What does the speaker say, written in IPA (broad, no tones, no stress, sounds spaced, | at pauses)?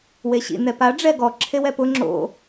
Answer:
w e ɕ ḭ n̪ ɛ p a ɖ͡ʐ ɛ ɡ ɔ ǁʰ e w ɛ p ʊ ŋ͡ǁ o̰